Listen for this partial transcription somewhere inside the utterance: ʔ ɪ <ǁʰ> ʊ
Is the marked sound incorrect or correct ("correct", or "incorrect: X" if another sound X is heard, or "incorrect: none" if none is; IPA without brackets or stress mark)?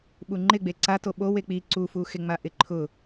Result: incorrect: ǃʰ